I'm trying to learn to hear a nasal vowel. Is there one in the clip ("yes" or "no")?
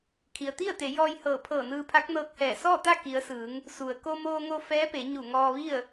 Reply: no